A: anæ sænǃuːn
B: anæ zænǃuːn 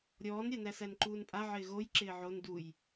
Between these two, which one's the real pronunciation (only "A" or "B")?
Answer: A